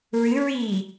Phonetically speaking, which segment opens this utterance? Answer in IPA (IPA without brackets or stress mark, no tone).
ɹ